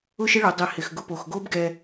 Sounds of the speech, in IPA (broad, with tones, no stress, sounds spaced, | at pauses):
ʊ˥ ʃ ɪ˥ ɭ ʊ˩˧ dˤ i˩ h ɪ˩ x ɡ ʊ˧ p o˩ x ɡ o˥ b ɡ ɛ˧